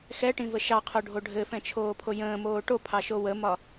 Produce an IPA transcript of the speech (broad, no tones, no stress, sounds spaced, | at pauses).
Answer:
x ɛ ʈ ĩ v ə ʃ ɑ qʰ o ɖʱ o ɖʱ ɘ f ɛ̃ t͡ʃʰ oː pʰ o j ə̃ː m oː ʈ o pʰ ɑ ʃ o w ə m ɒ